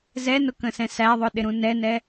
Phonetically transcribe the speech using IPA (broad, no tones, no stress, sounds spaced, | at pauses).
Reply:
z ɛ n ʊ k ə̃ s ɛ̃ s æ ðˤ ʊ ɗ ɪ ɾ ũ n ɛ n ɛ